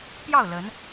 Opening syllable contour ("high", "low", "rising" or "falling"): falling